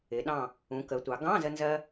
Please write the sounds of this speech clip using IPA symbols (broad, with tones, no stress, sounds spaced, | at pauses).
ɪ˩˧ ɗ ɑ̃˧˩ | ũ˩˧ k ə˩˧ tʷ ɑ˩˧ ɡ ɑ̃˧˥˧ z ə˧ n z ɜ˧